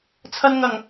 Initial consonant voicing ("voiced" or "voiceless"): voiceless